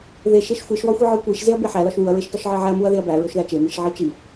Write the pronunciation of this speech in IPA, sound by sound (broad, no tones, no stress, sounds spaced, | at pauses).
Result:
ð e ʃ e ʃ xʷ i ʃ w ɒ xʷ i ʕ ɒ kʷ i ʃ z e ɐ̯ b e ħ æ l ɒ ʃ w u ɐ̯ ɹ e ʃ t ɒ ʃ ʕ e ʕ æ ɐ̯ m u ɐ̯ ð e ɐ̯ b æ ɹ o ʃ ð æ t͡ʃ e m i ʃ ʕ i t͡ʃ i